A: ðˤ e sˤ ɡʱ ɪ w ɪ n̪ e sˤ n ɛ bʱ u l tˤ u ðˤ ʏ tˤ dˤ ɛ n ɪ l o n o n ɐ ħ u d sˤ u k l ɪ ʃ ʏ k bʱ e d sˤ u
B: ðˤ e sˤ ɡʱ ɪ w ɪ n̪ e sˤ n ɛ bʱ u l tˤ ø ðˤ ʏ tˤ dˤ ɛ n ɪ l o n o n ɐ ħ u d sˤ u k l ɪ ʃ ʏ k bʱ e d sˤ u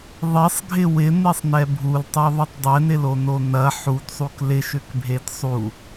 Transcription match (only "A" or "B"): B